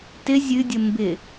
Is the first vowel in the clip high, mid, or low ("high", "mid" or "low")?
high